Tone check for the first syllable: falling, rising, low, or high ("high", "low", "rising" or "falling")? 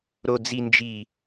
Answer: low